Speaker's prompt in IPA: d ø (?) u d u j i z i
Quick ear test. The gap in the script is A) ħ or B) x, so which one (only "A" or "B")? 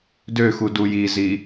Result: B